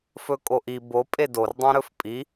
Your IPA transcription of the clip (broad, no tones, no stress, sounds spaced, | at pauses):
f ɵ kʼ o ʔ i b o pʼ e d o r dˤ ẽ ɾ ɵ f pʼ i